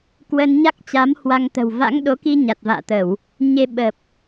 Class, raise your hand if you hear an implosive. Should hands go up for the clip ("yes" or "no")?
yes